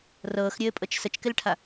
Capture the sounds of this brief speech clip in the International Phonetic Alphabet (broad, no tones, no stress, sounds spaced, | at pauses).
r ɤː x ɾʲ ɘː pʼ ɤ t͡ʃ s ə t͡ʃ k ɪ l ʈʰ a